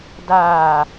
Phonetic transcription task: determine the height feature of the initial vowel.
low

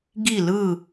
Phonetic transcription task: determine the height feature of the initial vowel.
high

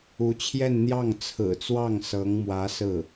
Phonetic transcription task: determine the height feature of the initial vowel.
high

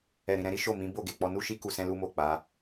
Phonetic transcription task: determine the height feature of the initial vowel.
mid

